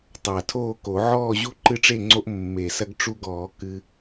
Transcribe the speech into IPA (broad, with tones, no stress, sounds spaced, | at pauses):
tˤ a˨˩ tʰ oː˥˨ k o˨˩˦ ʕ ɔː˥˨ ʑ u˥˨ ǃ ɨ˦ ʈ͡ʂ e˥˨ ŋ͡ǀ o˦ ʔ mː e˨˩ s ɐ˦ ɡ ʈ͡ʂ u˦ ɡ ɔː˨˩˦ k ɨ˦